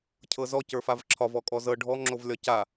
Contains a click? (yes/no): yes